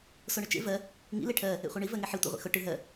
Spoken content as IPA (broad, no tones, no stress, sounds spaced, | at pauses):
s o ɳ ʊ t͡ʃ ḛ v ɜ | ŋ ḭ l e ʈʰ ɜ | ḛ χʷ ɜ ɳ i v ɜ ŋ e ħ i tʷ ḛ ʁʷ ḭ x ʊ ʈ ɯ ɦ ɜ